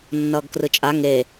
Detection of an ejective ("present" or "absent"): present